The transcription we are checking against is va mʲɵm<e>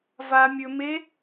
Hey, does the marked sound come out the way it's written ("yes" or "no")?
yes